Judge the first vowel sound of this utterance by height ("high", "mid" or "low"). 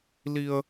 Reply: high